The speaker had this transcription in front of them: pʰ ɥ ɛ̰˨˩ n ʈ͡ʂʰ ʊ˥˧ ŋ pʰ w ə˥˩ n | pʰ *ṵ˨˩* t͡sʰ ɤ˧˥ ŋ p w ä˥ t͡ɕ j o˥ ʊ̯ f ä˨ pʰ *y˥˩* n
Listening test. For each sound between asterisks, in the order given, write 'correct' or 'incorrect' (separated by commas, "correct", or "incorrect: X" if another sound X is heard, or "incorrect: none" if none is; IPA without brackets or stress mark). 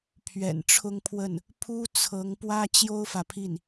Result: incorrect: u˥, incorrect: i˥˩